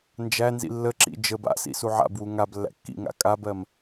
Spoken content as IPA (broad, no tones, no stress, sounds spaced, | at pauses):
n d͡ʒ æ n z ḭ lː ə ǁ ḭ d͡ʒ ə b a̰ s ḭ s u ʕ a̰ b w u ŋ a b lː æ̰ kː ḭ ŋ a̰ kʼ a b ɜ m